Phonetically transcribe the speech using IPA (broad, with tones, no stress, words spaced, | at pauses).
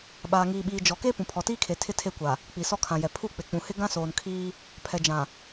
ɓaː˨ŋiː˨ɓiː˨ d͡ʒɔ˨ke˦ pũ˨pʰɔ˨tiː˦kʰe˨ tʰɪ˦tʰe˦˨kʷa˨ | k͡pi˨sɔ˦kʰã˨jɛ˨ pʰu˦˨k͡pɪ˨k͡pũ˨hɪ˦ ɡã˦soː˨nkʰiː˦ | pʰɛ˨d͡ʒã˨